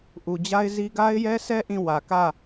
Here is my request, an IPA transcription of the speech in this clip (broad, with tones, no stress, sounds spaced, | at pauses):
ʔ u˨ d͡ʑ a˦ ɪ̯ z i˦ ɡ a˦ ɪ̯ j ɛ˦ s ɛ˦ ʔ ĩ˦˨ w ä˨ k ä˦˨